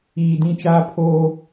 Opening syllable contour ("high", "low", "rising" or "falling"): low